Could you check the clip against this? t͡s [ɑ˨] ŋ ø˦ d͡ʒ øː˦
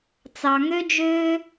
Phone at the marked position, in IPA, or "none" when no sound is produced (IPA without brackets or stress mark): ɑ˨